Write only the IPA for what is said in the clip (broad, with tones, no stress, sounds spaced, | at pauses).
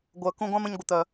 ɡʷ œ˨ k ũ˧ ɡʷ ã˦ m ə̃˧ ɲ ɡʷ ə˨ t̪ œ˨